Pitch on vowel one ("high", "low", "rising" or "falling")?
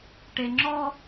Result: low